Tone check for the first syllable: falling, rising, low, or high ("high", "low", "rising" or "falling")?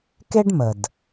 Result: high